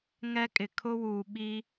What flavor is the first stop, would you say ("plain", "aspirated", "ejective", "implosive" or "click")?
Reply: ejective